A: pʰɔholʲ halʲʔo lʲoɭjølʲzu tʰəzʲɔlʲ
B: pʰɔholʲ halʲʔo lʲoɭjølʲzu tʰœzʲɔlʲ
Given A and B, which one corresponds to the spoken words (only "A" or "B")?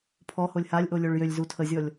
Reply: A